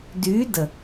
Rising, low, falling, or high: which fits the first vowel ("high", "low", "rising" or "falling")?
rising